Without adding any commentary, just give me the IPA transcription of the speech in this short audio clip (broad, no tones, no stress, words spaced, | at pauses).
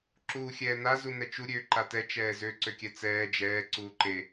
ǁuːxʲɛːna zunɛt͡ʃu ɾʲøːǃatɛ t͡ʃɛːzø ǀøkʲɛt͡sɛː d͡ʒɛː ǀuːǃe